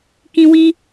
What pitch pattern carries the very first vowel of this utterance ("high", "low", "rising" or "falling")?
high